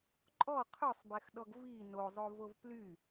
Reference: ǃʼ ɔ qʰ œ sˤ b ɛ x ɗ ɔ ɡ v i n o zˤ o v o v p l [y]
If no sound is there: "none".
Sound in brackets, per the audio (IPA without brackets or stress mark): y